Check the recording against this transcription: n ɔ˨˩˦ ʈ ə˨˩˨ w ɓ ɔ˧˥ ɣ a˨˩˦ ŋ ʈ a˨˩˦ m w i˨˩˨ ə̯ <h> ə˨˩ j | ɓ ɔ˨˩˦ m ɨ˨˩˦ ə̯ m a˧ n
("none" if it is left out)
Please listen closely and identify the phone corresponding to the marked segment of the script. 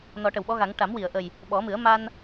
ʔ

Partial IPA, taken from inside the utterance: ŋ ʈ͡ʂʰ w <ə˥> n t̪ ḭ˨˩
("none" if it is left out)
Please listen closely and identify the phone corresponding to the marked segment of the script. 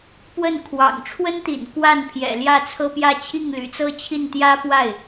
ə˥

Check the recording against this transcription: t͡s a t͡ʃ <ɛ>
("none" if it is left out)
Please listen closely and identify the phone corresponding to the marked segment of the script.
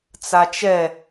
ɛ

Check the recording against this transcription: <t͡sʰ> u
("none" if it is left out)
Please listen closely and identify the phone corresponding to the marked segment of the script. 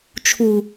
t͡ʃʰ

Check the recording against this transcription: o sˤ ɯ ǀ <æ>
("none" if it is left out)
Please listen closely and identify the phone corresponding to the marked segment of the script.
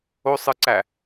æ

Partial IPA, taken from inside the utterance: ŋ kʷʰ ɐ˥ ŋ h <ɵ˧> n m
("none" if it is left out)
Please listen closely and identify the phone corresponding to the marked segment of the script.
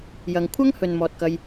ɵ˨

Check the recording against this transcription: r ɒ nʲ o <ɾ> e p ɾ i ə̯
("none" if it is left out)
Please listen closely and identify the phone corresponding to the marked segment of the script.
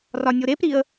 ɾ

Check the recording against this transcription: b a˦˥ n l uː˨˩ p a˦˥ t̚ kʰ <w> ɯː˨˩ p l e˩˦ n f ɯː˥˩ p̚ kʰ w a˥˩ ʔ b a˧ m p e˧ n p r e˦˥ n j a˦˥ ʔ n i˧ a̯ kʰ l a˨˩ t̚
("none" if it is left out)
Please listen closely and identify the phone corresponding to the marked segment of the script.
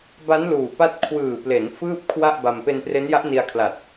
w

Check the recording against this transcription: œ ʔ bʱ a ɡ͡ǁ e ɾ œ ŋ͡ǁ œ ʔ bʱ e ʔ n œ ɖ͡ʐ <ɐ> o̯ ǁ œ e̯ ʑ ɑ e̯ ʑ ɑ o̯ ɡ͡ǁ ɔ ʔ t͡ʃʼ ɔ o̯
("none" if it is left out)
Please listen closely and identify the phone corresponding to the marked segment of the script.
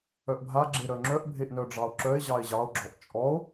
ɑ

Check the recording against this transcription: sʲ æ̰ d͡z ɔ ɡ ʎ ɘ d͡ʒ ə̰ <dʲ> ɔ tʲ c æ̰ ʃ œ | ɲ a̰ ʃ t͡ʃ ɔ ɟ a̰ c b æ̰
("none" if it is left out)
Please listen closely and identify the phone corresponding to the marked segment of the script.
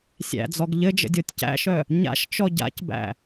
dʲ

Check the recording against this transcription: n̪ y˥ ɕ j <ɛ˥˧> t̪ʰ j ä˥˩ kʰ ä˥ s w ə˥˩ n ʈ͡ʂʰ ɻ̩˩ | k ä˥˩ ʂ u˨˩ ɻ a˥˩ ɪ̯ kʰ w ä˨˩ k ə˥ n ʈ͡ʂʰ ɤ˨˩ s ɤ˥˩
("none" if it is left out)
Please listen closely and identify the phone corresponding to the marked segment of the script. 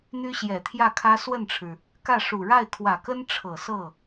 ɛ˨˩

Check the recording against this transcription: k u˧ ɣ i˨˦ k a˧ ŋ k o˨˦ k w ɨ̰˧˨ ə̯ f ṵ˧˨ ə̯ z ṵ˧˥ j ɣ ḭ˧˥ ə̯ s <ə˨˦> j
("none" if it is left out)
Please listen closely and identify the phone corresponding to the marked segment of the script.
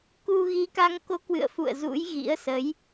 ə˨˦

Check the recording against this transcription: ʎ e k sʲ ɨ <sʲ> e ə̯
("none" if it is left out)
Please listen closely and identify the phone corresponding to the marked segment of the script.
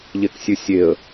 sʲ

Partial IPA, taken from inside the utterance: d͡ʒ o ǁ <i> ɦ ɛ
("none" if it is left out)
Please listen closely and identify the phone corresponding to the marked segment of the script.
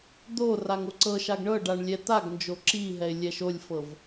i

